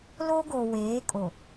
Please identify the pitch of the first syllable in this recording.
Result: high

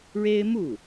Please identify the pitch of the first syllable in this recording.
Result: high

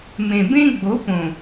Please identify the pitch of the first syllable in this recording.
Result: low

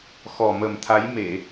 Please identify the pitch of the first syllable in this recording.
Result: low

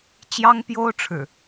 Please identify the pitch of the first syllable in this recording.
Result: high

